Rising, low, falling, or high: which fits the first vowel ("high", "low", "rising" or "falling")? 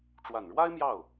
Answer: low